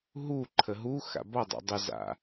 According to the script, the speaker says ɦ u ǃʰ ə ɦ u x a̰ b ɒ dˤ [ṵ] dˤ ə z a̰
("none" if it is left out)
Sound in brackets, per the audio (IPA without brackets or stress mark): ṵ